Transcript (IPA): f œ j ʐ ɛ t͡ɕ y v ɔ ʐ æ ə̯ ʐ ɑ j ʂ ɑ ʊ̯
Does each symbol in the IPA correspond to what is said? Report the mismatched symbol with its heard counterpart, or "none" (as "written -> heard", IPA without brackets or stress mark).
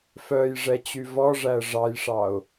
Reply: none